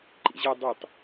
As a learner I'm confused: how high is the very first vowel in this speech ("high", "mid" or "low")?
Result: high